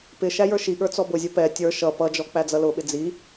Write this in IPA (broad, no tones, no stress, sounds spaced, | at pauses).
p ɪ ʃ æ j ə˞ ʃ i ɠ ə˞ t͡s ɔ b ʊ zʲ ʊ p ɛ tʲ ə˞ ʃ ʌ p ʌ d͡ʒ ɔ k͡p æ d͡z ʌ l ʊ ɓ ɪ d͡z i